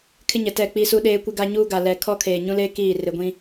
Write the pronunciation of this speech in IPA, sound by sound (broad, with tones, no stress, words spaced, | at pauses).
kʰɪ˦ɲɛ˨ tɛ˦˨k͡pi˦su˦ ɗeː˦kʷɪ˦ɡa˦ɲuː˦ ɡa˨lɛ˨ kʰɔ˦kʰeː˨ɲũ˦leː˦ kiː˦˨ rɪ˨ɡʷĩ˦